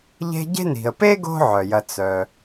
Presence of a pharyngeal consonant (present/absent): present